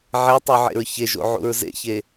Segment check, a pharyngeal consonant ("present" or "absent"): present